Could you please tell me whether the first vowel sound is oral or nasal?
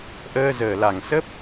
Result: oral